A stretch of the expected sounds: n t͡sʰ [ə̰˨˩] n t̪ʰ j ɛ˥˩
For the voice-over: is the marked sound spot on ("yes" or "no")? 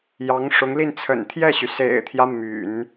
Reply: yes